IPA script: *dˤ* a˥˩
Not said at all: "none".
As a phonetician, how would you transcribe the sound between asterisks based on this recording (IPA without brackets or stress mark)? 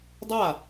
dˤ